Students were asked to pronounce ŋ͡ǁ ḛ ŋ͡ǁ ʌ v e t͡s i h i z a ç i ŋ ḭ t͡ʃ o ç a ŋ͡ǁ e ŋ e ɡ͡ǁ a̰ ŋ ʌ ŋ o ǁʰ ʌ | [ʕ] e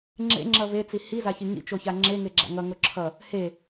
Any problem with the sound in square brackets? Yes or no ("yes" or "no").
yes